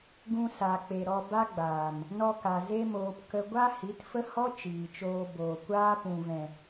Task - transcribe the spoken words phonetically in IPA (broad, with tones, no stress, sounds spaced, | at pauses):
ɡ ũ˧ s a˨ k͡p e˨ ɾ ɔ˧ b a˦ ɡ͡b aː˨ m | n ɔ˧ k a˨ z e˦ m oː˧ p k ə˧ ɡʷ a˦ h i˨˦ t f ə˦ h ɔ˦ t͡ʃ iː˨ t͡ʃ oː˧ b oː˨ kʷ aː˦ p ũ˨ v ɛ̃˨